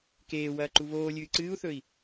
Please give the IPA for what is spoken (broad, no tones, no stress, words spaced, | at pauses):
keːwɐː ǃuβoːlʲɨː ǀɨːu̯θɵi̯